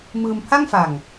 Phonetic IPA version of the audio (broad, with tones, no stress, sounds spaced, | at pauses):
m ɯː˧ m pʰ a˥˩ ŋ f a˨˩ ŋ